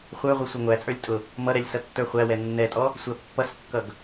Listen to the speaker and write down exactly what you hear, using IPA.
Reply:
χʷə˞ʁʷʌ sʷʌŋʷæt͡sʼə˞lʲ tʼʊ | mʌɾɛlʲ sʌtːə˞χʷæwɛ nːɛtʼɔ | sʷæpːʌskːʌɡ

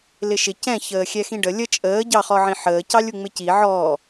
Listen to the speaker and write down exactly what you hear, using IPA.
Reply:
lɪʃɪ cɛ̃ çəːxʲɛxĩɖə lʲə t͡ʃʼəː ɟɑχɔʕĩ ħəːcɑlʲu ŋ͡mɪci ʕɔː

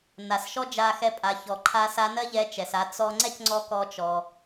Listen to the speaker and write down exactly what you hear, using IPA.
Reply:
na˩sʃɔ˥d͡ʒa˧ xɛ˧pʼa˩˧ çɔ˩ ǃʰa˧˥sa˧˥nɜ˥ʎɛ˧˥ t͡ʃɛ˩sa˧ t͡sɔ˧ ŋ͡ǀɛ˥cŋ͡ǀɔ˧ kɔ˧t͡ʃɔ˩

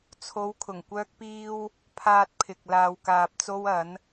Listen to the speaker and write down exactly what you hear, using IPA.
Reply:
t͡sʰo˨˧wkʰʊ˨˩ŋkʷœː˧k̚piː˧w | pʰaː˧t̚pʰɪ˨k̚ laː˨wkaː˨p̚t͡so˧wɐ˨˧n

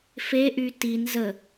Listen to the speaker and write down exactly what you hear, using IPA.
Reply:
feʔy tin zə

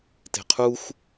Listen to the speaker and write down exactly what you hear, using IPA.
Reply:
te̤qʰux

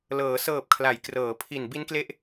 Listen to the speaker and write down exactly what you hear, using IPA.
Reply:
lɤː˩˦ sɤː˨˩p̚kʰla˩˦j krɤː˩˦pʰi˨˩n bi˦˥nkle˦˥ʔ

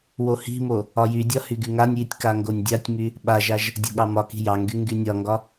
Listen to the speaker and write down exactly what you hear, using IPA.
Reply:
wohi̤mo | ɒjydʲɒ hyɡyŋanʲjitʲ kaŋɡonʲdʲatʲmy | ɓaʒaʒ | dʲo̤ɠɑmɒki̤ jɑŋɡy ŋɡynʲɒŋɡɒ

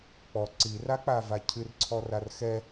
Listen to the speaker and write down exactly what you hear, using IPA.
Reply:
k͡pɔ ǀirak͡pava cʰɨrǀʰɔrar xɛ

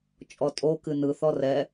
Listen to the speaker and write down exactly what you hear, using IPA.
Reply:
t͡ʃʼɔtʼokɨ nɯθɔ rɛ

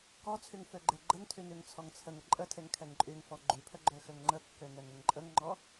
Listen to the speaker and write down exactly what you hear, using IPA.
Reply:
kɔt͡sʰyŋ føɡ͡ǃeɡ͡ǃəŋtʰy nyŋt͡sʰɔŋt͡sʰəŋə ǃʼətʰeŋ kʰɛŋǃʼyŋfɔ ɡ͡ǃypʰə ɡ͡ǃøxøŋŋ͡ǃəkːø nɛŋəŋǃʼəŋŋ͡ǃɔ

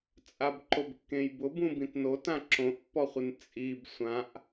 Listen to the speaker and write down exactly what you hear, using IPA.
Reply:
t͡sʼabǃobkːẽjbʊ bũbĩtnotã ǁõʔpːɔχʷɪn t͡sʼib sʷãʔ

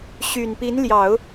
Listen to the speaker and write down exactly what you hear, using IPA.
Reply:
ɕy˨˩npi˧˥nljɑ˨˩˦ʊ̯

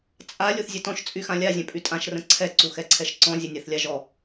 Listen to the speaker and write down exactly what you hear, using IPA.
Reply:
t͡sʼa lʲoθzʲøtɔ̃ʃ t͡sʼyxãlʲa zʲœ̃pʼytʼãʃ rə̃ǀʰɛ ǀuxɛǀʰɛʃǀɔ̃ zʲɛnʲaθlʲaʒɔ

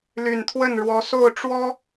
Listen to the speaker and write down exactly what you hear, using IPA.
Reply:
ly˨˩nt̪ʰwə˥˩nɻwɔ˧˥ so˥˩ʊ̯ʈ͡ʂwɔ˥

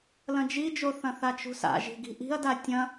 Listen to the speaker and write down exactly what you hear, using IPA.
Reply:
lɐ̃d͡ʒid͡ʒoθɐ̃ θat͡ʃṳsa̰ ʒi̤ɡi̤ʔi̤ɐ̯da tʲɐ̃

